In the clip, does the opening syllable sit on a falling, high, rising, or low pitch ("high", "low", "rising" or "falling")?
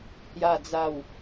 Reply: falling